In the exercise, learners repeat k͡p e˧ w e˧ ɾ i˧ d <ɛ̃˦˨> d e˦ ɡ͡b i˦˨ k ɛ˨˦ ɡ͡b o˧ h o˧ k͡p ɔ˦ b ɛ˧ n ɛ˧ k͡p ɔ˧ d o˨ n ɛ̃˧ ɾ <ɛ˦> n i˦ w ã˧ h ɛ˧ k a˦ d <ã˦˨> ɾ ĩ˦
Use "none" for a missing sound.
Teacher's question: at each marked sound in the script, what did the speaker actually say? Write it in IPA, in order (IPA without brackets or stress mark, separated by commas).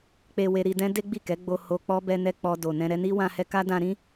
ɛ̃˦, ɛ˧, ã˧